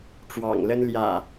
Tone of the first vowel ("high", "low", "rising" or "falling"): low